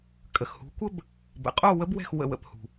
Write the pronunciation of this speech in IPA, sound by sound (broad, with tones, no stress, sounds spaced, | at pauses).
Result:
kʼ ə˩ x h ṳ˩˥ kʷ ə˥ b | b ə̰˩ qʼ o˥˩ w ə˥ b w ɛ̤˥˩ x w ə̰˥˩ w ə̰˥˩ p h ṳ˩